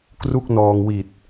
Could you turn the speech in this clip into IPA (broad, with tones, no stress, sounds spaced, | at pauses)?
k r u˥˩ k̚ n ɔː˧ ŋ w i˨˩ t̚